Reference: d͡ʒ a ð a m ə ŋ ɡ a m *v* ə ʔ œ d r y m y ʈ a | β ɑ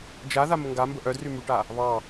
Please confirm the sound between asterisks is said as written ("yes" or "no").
no